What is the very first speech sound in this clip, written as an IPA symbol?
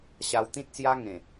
ɕ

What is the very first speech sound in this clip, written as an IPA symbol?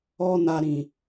ɔ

